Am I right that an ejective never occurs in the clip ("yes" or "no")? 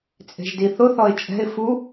no